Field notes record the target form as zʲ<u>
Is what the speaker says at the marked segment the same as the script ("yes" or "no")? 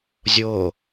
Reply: no